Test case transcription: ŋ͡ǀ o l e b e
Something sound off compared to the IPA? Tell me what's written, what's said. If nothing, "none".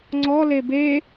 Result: o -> ɔ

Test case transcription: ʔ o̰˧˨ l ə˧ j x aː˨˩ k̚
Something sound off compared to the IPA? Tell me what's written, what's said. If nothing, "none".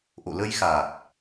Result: none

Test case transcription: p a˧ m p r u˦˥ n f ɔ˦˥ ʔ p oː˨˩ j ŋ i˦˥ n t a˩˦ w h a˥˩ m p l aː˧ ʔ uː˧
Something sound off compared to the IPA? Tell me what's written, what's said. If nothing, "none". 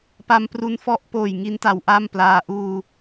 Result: h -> ʔ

